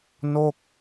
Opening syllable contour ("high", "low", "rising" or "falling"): falling